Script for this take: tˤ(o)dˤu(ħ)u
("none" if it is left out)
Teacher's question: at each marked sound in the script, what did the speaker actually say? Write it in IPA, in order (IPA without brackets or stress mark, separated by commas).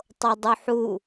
o, ħ